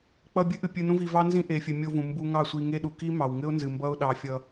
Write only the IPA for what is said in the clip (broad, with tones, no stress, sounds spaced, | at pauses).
k͡p ʌ˧ bʲ ɨ˦ ʔ ɨ˨ pʲ ɨ˧ n ũ˦ v i˧ v ɑ˦ n z ĩ˧ ʔ e˨ fʲ ɘ˨ mʲ o˧ v ũ˨ m b u˧ ŋ ɑ˦˨ sʷ i˧ ŋ e˦ ɗ u˨ k i˦ m ɑ˨ w ŋ ɘ˦ ʊ̯ n z ɨ˨ m b ʌ˦ ʊ̯ ɗ ɑ˧ fʲ ʌ˧